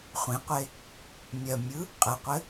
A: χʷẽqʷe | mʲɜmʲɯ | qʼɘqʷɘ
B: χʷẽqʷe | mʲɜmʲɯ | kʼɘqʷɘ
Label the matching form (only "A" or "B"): A